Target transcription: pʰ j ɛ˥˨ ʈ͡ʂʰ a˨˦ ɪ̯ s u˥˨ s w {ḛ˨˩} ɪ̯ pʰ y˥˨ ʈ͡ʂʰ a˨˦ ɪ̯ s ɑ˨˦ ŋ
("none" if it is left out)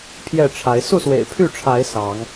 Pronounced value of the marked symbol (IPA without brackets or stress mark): ḛ˨˩